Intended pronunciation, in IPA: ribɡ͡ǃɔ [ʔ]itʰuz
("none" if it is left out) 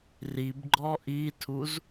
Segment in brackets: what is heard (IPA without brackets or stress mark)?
ʔ